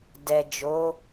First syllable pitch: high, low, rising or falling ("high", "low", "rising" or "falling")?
low